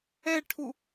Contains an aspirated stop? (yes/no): yes